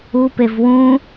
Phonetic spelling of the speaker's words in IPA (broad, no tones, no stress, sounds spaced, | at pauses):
u p e v w ũ